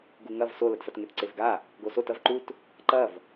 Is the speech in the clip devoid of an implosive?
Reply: yes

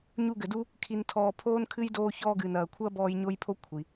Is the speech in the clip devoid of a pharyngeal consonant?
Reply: yes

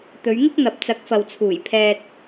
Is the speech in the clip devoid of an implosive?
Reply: yes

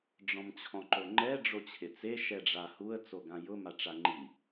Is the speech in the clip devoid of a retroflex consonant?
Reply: no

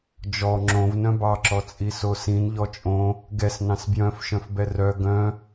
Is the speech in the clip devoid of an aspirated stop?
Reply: yes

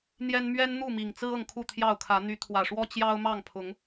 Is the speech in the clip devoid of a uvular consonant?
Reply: yes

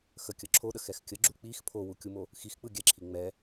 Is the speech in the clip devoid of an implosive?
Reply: no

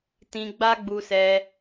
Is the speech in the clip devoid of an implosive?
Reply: yes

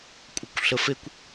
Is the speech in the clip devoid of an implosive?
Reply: yes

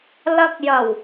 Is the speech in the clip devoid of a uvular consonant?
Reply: yes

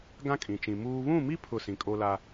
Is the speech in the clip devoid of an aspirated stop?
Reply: no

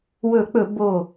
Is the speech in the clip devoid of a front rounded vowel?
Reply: yes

